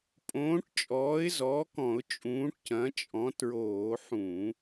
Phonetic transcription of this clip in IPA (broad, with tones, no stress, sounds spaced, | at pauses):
pʼ õː˨˥ ʈ t͡ʃʼ ɔː˨˥ ɪ̯ z ɔː˨˥ k ɔ̃˧˩˧ ʊ̯ t͡ʃʼ ũː˨˥ ʈ c ɐ̃˨˥ t͡ʃʼ ɔ̃˨˥ t ɹ oː˧˩˧ ħ ũ˧˩˧